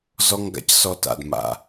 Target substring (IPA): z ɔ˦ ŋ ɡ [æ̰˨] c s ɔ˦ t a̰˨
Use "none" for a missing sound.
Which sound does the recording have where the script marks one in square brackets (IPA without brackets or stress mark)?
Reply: a̰˨